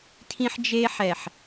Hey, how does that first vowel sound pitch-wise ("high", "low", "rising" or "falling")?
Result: high